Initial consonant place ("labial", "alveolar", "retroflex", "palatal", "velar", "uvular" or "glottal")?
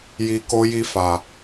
palatal